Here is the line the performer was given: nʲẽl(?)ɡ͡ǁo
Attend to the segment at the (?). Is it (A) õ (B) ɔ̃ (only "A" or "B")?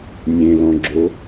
B